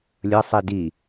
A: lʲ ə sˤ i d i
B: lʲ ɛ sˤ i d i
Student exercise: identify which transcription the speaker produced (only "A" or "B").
A